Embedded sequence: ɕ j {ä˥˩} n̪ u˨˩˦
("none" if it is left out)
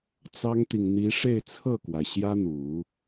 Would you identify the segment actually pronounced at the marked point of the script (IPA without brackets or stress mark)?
ä˥